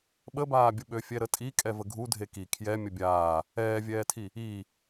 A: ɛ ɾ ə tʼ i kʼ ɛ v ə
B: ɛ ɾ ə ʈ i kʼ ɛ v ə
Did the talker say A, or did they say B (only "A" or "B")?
A